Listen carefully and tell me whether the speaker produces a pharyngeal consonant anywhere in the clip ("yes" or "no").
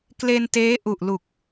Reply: no